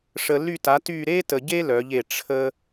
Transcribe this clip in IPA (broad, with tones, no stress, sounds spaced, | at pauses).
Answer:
ʂ ə˨ l y˦˨ t a˩˥ t y˦˨ ɾ e˥ t ə˨ ɟ e˥ l œ˩˥ ʎ e˨ ʈ͡ʂʰ ə˥